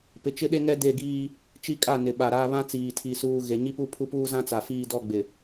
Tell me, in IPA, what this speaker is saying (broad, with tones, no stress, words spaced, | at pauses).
pɪ˨t͡ʃɪ˦ɗe˦ŋɛ˦ de˦˨ɡiː˦ | t͡ʃi˦kʼa˦˨nɪ˨ ɓa˨ɾa˦ βã˦t͡siː˨tʰi˨ suː˦ ɣe˨ɲi˦pu˦pʰu˦ puː˦zã˦ t͡sa˨fiː˦dɔ˦˨ɡ͡bɪ˨